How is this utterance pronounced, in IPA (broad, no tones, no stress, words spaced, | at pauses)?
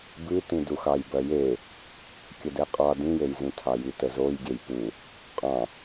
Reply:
bɨtĩduxɑj bɜje | kʲədɛqʼɑ dĩjejzĩtʰɑ jitəzoj ɡʲejpu | qʼɑ̃